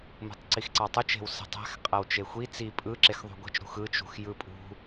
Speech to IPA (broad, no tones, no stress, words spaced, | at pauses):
mṳtˤǀixǀɑtˤut͡ʃ e̤wsi̤tˤæ̤x qʼæwt͡ʃexʷi t͡si pʼɯ ǁexðˤṳɡʷi̤t͡ʃ ɾṳxɯ t͡ʃṳxjɯpʼṳ